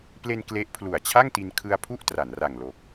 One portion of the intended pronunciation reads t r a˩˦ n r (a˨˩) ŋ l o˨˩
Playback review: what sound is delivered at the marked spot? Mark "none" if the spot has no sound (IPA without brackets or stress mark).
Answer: a˨˩